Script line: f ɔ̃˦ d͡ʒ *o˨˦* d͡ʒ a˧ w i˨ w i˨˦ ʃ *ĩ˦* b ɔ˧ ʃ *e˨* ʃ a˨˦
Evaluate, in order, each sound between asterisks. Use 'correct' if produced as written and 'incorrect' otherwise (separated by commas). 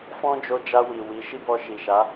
incorrect, incorrect, incorrect